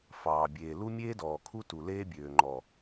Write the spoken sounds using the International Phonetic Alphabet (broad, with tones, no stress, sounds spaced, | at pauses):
f ɑː˨ bʲ eː˨ l u˦ mʲ eː˦ d ɔː˨ kʰ u˦ t u˨ l eː˦ bʲ øː˨ ŋ͡ǃ ɔ˨